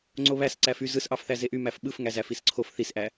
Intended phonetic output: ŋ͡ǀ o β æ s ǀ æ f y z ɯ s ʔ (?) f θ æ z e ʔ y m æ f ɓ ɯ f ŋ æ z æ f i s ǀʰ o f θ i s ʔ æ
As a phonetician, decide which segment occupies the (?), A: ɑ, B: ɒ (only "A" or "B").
A